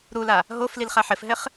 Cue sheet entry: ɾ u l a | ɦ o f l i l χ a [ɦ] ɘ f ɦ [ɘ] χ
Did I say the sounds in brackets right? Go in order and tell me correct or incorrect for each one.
incorrect, correct

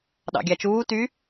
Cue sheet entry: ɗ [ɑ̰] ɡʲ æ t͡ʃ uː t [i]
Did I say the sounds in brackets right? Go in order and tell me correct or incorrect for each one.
correct, incorrect

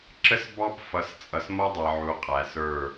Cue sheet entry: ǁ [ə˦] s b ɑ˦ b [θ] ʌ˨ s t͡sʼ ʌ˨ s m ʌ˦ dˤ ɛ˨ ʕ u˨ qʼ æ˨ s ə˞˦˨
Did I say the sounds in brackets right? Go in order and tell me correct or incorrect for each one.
correct, incorrect

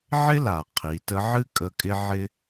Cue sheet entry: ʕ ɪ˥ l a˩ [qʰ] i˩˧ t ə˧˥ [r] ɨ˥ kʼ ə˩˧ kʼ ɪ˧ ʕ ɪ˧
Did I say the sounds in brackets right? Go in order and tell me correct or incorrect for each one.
correct, incorrect

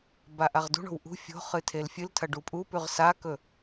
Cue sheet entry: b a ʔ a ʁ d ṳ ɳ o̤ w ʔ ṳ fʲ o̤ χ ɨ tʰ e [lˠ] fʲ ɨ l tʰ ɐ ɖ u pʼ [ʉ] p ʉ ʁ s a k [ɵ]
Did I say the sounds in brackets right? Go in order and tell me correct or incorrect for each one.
incorrect, incorrect, correct

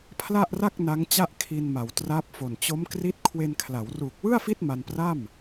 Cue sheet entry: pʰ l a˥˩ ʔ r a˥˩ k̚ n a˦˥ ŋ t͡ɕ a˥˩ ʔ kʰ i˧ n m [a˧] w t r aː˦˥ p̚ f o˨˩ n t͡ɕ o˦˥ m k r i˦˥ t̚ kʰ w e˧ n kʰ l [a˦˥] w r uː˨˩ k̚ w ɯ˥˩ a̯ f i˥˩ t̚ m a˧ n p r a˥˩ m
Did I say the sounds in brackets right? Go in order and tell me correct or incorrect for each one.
incorrect, incorrect

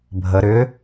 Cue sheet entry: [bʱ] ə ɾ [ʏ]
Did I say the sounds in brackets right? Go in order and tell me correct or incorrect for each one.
correct, correct

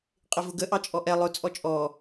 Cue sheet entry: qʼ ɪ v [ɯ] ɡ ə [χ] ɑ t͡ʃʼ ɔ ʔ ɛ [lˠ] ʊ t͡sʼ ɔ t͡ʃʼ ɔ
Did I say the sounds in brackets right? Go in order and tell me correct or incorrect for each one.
incorrect, incorrect, correct

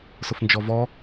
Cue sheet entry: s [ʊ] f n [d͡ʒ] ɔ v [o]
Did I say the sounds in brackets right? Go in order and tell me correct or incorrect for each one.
correct, correct, incorrect

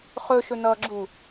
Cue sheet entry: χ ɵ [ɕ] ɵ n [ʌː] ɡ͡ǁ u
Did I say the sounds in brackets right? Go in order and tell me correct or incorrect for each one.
incorrect, correct

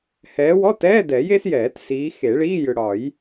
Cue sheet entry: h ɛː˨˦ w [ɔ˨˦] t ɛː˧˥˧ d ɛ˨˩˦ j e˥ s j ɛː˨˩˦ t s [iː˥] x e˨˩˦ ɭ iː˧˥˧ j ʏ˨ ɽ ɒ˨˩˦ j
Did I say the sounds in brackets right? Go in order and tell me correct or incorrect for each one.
incorrect, incorrect

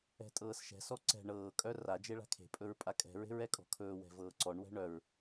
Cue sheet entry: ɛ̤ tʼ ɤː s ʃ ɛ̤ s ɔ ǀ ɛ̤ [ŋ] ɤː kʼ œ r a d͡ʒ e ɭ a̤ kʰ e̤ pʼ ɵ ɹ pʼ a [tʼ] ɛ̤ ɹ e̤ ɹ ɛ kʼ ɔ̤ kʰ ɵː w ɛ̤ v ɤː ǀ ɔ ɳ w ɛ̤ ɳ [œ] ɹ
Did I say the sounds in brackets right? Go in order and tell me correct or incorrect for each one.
incorrect, incorrect, correct

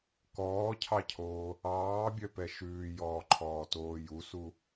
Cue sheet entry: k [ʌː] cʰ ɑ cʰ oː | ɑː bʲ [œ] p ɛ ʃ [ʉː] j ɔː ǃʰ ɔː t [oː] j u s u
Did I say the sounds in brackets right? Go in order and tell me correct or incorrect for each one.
incorrect, correct, correct, correct

